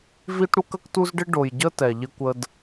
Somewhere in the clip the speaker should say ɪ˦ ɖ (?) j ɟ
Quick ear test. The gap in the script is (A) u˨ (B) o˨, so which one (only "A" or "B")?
B